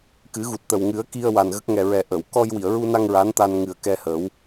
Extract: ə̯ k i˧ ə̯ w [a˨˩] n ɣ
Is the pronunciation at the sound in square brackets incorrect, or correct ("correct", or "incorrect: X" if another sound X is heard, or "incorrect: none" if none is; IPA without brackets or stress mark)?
correct